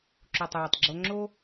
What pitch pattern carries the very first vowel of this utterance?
low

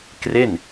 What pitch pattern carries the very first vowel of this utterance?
falling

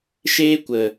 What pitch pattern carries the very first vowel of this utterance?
high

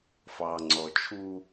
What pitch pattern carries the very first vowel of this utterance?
low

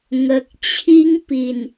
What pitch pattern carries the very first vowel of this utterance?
low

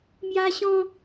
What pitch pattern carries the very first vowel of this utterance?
high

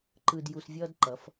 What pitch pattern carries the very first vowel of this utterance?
low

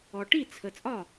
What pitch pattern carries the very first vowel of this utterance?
low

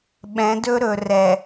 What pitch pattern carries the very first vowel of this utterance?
rising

